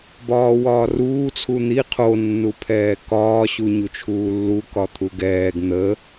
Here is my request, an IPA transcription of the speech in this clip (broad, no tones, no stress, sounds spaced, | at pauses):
b ɒː w ɒː r uː t͡sʰ u n̪ i qʰ o nː u pʰ ɛː k ɒː ɕ u ɲ u t͡ʃʰ uː lː u k ɒ t̪ʰ u ɡ ɛː ɡ n̪ ə